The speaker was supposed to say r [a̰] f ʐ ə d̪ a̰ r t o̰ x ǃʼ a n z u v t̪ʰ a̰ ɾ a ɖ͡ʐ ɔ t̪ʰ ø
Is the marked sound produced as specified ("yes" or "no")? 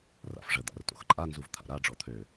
yes